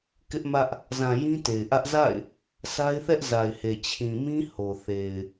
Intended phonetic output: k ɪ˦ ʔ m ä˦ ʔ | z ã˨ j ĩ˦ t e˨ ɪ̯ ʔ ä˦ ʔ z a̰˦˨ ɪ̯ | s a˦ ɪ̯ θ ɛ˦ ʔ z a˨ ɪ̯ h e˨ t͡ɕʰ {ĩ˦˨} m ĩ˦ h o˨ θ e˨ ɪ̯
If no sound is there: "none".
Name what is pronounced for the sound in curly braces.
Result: ĩ˨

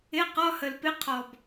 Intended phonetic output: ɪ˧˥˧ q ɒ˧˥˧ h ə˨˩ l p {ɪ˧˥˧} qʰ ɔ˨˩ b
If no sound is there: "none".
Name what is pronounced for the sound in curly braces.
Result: ɪ˧˥˧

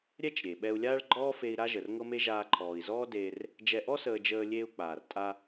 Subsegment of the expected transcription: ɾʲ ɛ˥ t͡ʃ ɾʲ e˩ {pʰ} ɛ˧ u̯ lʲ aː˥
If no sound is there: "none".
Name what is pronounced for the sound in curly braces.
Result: ɓ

